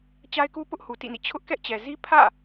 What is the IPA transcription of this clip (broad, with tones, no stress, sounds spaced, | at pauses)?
t͡ɕ a˦ ɪ̯ k u˦ p ʊ˦ ʔ h u˨ t ḭ˦˨ n ḭ˦˨ t͡ɕʰ ʊ˦ ʔ k ɛ˦ ʔ t͡ɕ ɛ˨ z i˦ pʰ ä̰˦˨